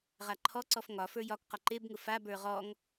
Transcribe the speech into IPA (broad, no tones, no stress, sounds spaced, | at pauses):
ʁ a ǃʰ ɔ ǀ ɔ f ŋ ɒ f ə˞ j ɒ k q ɒ ǃ e b ŋ ʊ f a b ə˞ ʁ ɔ ŋ